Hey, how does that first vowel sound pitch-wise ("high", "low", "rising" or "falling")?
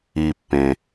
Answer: low